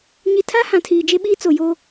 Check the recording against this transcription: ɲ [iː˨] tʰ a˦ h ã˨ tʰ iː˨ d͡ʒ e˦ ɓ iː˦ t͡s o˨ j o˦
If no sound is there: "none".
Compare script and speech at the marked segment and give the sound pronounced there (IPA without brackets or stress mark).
i˨